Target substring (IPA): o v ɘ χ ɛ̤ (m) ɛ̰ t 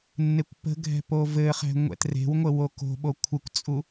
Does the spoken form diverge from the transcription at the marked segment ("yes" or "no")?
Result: yes